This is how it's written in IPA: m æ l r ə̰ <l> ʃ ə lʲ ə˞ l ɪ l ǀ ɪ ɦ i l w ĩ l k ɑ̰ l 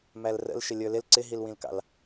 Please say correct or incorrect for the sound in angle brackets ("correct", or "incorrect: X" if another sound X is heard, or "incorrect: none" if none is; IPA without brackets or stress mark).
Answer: correct